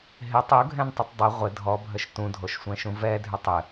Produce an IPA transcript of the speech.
ɦ ɪ tˤ u ɡʱ ɛ̃ n tˤ ɪ tˤ dˤ ɪ ʁʷ ɪ dʱ ɔ bʱ ə ʃ t ũ dʱ o ʃ sʷ ɛ̃ ʃ ũ v ɛ dʱ ʏ tˤ ɪ

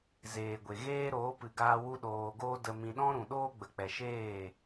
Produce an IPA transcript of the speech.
z eː˨ ɡʷ e˨ ɣ eː˦ ɾ oː˨˦ p ɨ˨ ɡ aː˧ w u˦ ɗ oː˧ ɡ oː˦ d ə˧ m ĩ˧ ɗ ɔ̃˦ ɾ ũ˨ ɗ oː˦ ɡ͡b ə˨ k͡p ɛ˨ ʃ eː˦˨

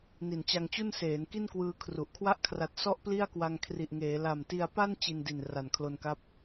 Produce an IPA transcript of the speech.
n i˨˩ n t͡ɕ a˧ ŋ t͡ɕ u˥˩ n s eː˩˦ n k i˥˩ n k w ɯː˧ kʰ r u˨˩ ʔ kʰ w a˦˥ ʔ kʰ r a˨˩ t̚ s ɔ˥˩ ʔ p l i˥˩ a̯ k w a˧ ŋ kʰ r i˨˩ ʔ ŋ eː˩˦ l a˨˩ m t i˧ a̯ p a˥˩ n t͡ɕ i˧ n d i˨˩ n r a˨˩ n kʰ l o˧ n k a˦˥ p̚

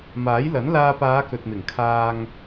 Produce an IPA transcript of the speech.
m aː˨˥ j l ɐ˨˥ n l aː˧ p aː˨˧ k ɵ˨ t̚ m ɪ˨˩ ŋ kʰ aː˧ ŋ

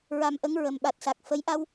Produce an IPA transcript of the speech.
ɹ a˧ m ʔ ə˧˥ ŋ ɹ ə˨˩ m ɓ a˨˩ t̚ s a˨˩ k̚ f ə˧˥ j ʔ a˧ w

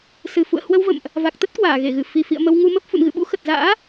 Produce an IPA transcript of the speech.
s ɨ˨˩ f ṵ˧˨ ə̯ h w ə˧ w v ə̰˧˨ m ʔ | v a˨˩ k̚ t̪ ə˦˥ t̚ k w aː˧˩ ɣ e˧˩ ɣ ɨ˧˩ f i˨˩ f ḭ˧˨ ə̯ m ə˧ w ŋ u˧ m ə˦˥ p̚ f ṵ˧˨ n ɣ ɨ̰˧˨ ɓ ṵ˧˥ x ə˨˩ t̚ z a̰ː˧˥

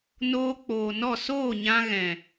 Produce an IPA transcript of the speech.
n oː˧ k͡p oː˨ n ɔ˦˨ s oː˦˨ ɲ ã˧ ɣ ɛ̃˨

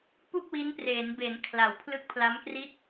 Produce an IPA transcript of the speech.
p u˥˩ k̚ w i˦˥ n p r eː˩˦ n b e˩˦ n kʰ l a˩˦ w pʰ l ɯ˦˥ k̚ pʰ l a˦˥ m k r i˥˩ t̚

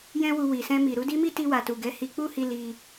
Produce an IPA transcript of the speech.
j ɛ̃˦ w u˧ w i˨ s ɛ̃˧ m i˨ ɾ u˨˦ d i˦ m i˦ t i˧ w a˨ t u˨ ɡ ɛ˨˦ h i˧ k͡p u˦ h i˧ l i˧

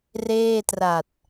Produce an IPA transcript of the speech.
r eː˥˩ t r a˨˩ t̚

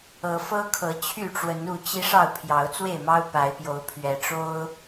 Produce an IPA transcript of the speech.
ɤ˨˦ f ɤ˦ kʰ ɤ˨˦ t͡ɕʰ y˥˨ ʈ͡ʂ w ə˨˦ n u˥˨ t͡ɕ i˦ ʂ ɑ˥˨ ʊ̯ pʰ j ɑ˨˦ ʊ̯ t͡s w e˥˨ ɪ̯ m ɑ˦ ʊ̯ p a˨˦ ɪ̯ p j o˨˦ ʊ̯ pʰ ɥ ɛ˨˩ ʈ͡ʂ o˦ ʊ̯

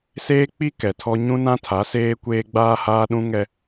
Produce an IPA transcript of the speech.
s eː˦ k͡p i˦ k ɛ˨ tʰ ɔ˦ ɲ ũ˦ n ã˦ tʰ a˨˦ s eː˦ kʷ eː˦ ɡ͡b aː˦ h aː˦ ɗ ũ˦ ŋ ɛ˦

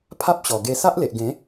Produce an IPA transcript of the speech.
pʰ a˦ p̚ ɕ ɔ˨˩ ɡ e˧ s a˦ ʔ l e˨ ʔ ɡ ẽ˨˦

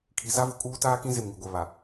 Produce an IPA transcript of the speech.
kʰ i˨ z a˦ v ʊ˨ kʼ uː˦ t aː˦ k ĩ˦ z e˨ m ŋ i˨ ɡʷ ɛ˨ β a˨

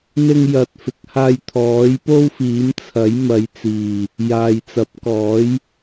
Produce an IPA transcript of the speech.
n̪ ɪ˧ ŋ j ɐ˨ t̚ f ɪ˨ k̚ h aː˧ j t̪ʰ ɔː˨˥ j p o˥ w f iː˨˥ m t͡sʰ ɐ˨˥ j m ɐ˨˧ j t͡s iː˨˩ | j aː˨ j t͡s ɐ˨˥ p̚ k ɔː˨˥ j

